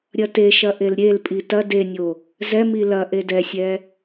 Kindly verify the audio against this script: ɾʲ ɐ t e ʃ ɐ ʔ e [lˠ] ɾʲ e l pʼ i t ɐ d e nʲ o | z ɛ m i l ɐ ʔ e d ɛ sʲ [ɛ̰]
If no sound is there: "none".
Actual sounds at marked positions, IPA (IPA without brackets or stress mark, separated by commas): l, ɛ